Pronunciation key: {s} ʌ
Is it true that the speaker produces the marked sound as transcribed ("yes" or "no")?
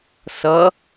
yes